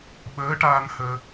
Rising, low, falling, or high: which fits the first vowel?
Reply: rising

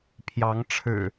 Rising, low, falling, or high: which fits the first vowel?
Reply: rising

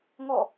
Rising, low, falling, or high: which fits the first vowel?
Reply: falling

